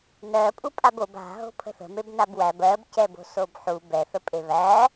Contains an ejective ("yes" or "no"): yes